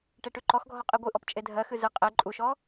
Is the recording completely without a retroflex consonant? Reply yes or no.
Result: no